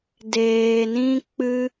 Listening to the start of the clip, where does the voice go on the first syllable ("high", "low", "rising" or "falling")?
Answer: low